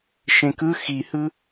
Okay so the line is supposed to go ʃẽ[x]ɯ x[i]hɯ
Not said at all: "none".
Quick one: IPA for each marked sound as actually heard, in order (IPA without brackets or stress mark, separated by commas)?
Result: k, i